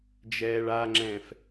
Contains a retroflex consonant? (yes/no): yes